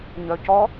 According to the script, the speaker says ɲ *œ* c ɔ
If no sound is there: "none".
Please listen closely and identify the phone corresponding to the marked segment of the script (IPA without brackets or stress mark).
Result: œ